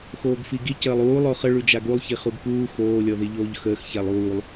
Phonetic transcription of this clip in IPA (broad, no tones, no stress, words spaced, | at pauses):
xoːɡfiɡi cəːlˠuː lˠoχə ɭʉd͡ʒaɡulˠ çiχuɡkuː xoː lʲɔðiʎoːʎxəːx çalˠuːlˠ